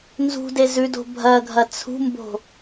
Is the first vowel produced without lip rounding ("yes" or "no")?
no